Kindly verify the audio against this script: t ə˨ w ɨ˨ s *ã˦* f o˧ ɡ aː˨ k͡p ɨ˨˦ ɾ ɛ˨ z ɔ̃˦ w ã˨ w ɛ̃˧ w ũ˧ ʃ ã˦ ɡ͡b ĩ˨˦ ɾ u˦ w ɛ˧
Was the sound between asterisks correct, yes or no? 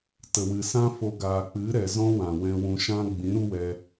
yes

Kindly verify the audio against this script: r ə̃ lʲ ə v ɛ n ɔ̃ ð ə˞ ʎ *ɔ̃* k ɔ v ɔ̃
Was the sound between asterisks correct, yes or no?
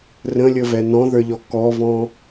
no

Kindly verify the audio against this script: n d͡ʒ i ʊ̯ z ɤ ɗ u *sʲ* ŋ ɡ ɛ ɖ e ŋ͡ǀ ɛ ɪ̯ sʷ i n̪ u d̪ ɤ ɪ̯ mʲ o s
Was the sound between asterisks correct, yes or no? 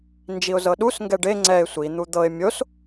no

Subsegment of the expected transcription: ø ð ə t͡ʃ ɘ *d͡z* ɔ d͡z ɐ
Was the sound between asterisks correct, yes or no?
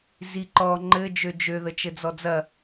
yes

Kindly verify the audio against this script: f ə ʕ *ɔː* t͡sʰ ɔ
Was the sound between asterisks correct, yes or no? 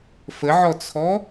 no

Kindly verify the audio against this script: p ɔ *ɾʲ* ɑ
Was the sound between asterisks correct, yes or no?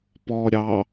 yes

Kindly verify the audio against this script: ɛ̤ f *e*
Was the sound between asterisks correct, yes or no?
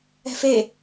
yes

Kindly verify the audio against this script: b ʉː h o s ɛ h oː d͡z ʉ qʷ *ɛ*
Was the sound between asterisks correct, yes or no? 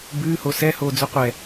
yes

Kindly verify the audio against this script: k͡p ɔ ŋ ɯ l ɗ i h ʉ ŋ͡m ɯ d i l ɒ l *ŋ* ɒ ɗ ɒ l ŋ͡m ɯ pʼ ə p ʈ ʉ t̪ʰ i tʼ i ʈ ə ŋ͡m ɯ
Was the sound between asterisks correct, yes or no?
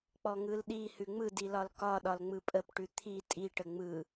no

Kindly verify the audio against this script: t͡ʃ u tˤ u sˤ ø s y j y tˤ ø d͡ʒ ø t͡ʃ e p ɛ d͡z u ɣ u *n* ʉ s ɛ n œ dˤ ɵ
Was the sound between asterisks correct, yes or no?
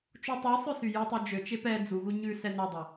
no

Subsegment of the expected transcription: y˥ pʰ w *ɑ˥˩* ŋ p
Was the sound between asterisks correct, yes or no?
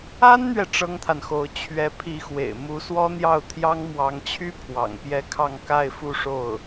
no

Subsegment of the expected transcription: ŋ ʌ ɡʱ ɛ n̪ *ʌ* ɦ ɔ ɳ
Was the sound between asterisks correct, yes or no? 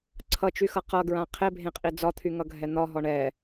no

